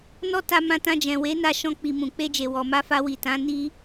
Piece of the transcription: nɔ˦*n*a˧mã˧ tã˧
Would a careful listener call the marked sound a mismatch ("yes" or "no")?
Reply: yes